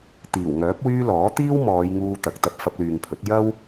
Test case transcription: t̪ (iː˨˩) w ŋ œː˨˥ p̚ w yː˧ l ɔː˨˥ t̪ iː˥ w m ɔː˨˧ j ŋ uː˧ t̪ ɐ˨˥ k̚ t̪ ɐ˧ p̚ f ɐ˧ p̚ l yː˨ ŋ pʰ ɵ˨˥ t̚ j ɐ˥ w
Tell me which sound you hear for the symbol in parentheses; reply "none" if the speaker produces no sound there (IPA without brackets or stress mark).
iː˨˩